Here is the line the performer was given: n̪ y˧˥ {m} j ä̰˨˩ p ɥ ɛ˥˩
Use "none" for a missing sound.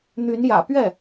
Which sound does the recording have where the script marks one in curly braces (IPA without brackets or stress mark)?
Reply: n